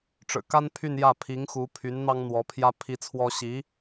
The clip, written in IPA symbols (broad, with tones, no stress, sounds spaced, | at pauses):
ʈ͡ʂ ɻ̩˨˩ k a˥ n pʰ y˥˧ n j ä˥˩ pʰ i˧˥ ŋ x u˧˥ pʰ y˧˥ n n̪ ɑ˥ ŋ n̪ w ɔ˧˥ pʰ j ä˥ pʰ i˥ t͡sʰ w ɔ˥ ɕ i˧˥